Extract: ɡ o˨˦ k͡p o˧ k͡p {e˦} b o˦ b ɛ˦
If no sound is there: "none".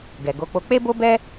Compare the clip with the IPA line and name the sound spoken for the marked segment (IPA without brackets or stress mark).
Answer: e˦